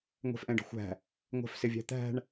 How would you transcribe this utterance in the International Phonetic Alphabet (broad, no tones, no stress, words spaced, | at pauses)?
ŋʷɛ̤fʔɛ̃ɖə̤xʷæ̤ | ŋʷæ̤fsɪvʲæ̤t̪æ̤ɳ